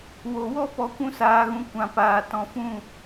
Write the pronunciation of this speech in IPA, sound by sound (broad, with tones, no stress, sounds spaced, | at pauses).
w o˨ w ɔ˦ p ɔ˧ kʷ ũ˦ s aː˧ ɣ ũ˧ kʷ ã˨ p aː˨ t ɔ̃˧ f ũ˦˨